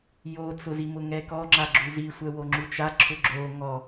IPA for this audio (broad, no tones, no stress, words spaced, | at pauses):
jot͡sʊzi mʊŋɛkɔŋ͡ǁa ɡ͡ǁuzi sʷɛwoŋ͡ǁut͡ʃa ǁʰʊɡ͡ǁo ŋɔ